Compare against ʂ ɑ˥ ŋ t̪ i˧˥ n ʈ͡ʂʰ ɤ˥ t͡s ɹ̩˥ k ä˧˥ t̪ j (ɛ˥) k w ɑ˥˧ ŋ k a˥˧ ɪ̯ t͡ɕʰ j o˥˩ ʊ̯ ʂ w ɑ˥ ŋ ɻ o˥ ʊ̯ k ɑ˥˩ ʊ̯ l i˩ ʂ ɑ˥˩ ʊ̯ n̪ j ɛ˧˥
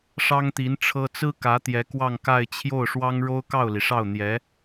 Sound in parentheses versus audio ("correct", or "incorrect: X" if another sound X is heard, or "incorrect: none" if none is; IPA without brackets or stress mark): incorrect: ɛ˧˥